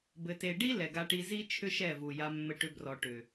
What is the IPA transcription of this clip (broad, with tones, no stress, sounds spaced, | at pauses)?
b ɘ˨ t e˨ ɖ i˦ l ɛ˨ ɡ a˧ ʈ i˧ z i˦ t͡ʃʰ ʏ˦ ʃ ɛ˦˨ v u˨ j a˧ mː ɘ˧ ʈ ʏ˧ b r ɔ˨ ʈ ʏ˨